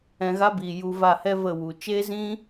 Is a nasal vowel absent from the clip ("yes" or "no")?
no